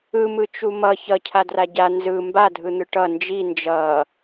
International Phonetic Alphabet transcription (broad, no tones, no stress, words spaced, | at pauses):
ɯmɯ t͡ʃumʌ çʌcʰa draɟa nzɯ mbadʱɯn̪ɯ ʈʌ nd͡ʒi nd͡ʒʌ